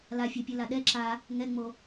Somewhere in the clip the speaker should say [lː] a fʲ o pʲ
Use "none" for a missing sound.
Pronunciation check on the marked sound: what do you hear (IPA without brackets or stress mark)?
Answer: l